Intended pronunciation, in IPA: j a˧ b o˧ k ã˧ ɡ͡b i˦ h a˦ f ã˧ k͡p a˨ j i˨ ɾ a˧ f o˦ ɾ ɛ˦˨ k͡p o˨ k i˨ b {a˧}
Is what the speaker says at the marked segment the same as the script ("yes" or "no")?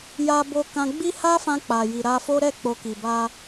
yes